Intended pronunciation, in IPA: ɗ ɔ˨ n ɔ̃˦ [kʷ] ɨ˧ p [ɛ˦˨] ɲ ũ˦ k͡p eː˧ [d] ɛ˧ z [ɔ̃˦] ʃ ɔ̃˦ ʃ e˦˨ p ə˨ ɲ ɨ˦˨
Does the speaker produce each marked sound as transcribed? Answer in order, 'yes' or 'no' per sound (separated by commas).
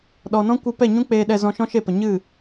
yes, yes, no, no